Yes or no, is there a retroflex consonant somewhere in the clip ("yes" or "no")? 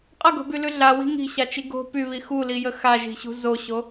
no